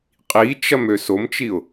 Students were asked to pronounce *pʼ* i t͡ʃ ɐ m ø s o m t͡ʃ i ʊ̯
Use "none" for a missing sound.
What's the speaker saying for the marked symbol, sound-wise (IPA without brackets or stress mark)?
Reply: qʼ